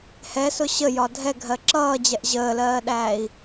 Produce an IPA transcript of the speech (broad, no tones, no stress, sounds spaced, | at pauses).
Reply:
h ɛ s ʊ ɕ ə j ɒ dʱ ɛ ɡʱ ɜ ǁ ʌː d͡ʑ ɛ ʔ ʑ əː l ɜː ɗ æː i̯